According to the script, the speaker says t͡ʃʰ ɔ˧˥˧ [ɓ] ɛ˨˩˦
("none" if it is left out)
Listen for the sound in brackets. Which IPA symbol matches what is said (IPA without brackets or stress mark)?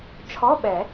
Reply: ɓ